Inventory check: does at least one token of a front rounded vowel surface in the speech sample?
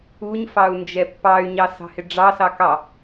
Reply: yes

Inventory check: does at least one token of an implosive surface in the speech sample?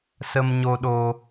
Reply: yes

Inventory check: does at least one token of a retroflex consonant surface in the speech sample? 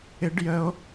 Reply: yes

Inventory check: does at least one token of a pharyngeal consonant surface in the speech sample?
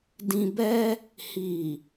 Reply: no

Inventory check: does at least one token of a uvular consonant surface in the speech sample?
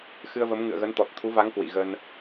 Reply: no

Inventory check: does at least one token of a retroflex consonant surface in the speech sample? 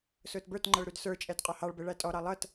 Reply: yes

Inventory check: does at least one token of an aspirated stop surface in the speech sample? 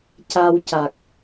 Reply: no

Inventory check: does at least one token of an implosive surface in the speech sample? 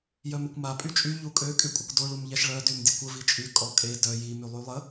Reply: no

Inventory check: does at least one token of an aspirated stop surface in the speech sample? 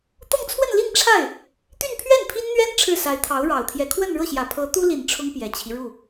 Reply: yes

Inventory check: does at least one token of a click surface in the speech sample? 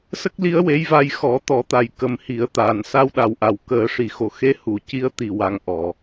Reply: no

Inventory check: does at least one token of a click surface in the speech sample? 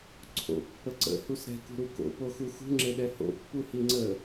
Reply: yes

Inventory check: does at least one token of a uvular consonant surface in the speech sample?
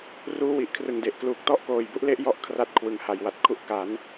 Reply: no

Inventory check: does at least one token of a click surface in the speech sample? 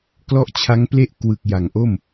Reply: no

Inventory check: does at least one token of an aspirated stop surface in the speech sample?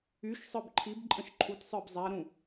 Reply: yes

